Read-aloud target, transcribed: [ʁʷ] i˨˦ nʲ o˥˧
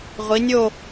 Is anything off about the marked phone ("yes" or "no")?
no